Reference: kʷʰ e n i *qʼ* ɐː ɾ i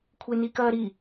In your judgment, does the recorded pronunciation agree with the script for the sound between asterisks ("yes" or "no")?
no